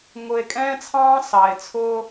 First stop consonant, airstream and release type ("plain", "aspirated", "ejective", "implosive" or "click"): ejective